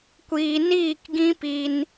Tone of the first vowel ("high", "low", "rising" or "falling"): low